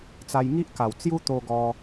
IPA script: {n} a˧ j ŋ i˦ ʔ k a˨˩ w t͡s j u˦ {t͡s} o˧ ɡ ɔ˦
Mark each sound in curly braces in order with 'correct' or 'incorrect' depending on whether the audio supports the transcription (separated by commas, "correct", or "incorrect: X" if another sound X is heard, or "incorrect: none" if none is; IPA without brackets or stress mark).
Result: incorrect: t͡s, incorrect: t̪